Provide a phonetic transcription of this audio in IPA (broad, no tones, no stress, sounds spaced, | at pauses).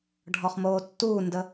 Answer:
ɖʱ ɔ χ m oː tː uː n d ə